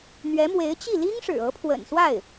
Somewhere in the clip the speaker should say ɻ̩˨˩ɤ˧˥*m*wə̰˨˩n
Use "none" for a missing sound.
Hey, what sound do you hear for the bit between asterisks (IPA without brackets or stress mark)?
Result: pʰ